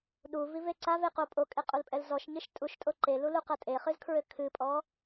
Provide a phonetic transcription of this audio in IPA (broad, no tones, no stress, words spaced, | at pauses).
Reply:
ɗuvive ǀaveqo pʼokʼeqʼulpʼɛl zɔʃɲɨʃ tʼuʃtʼo ǃeluluqɐ tʼeχɨzkʰɹɘ kʰɨpʼɔ